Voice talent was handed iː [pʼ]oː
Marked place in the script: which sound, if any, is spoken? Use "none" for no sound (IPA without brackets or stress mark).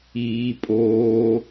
pʼ